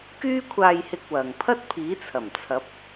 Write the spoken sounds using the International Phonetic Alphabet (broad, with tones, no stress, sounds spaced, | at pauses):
k yː˥ kʷʰ aː˧ j h ɪ˧ k̚ w ɐ˨ ŋ pʰ ɐ˥ t̚ pʰ iː˨˥ t͡sʰ ɐ˨˩ m t͡sʰ ɐ˨˥ p̚